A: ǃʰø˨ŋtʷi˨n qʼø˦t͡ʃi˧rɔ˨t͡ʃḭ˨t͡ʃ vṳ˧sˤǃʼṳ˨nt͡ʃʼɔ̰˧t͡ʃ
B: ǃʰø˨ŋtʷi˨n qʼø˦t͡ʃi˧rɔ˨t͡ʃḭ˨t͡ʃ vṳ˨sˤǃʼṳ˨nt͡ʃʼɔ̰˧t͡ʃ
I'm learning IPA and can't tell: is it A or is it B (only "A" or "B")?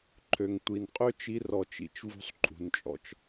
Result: A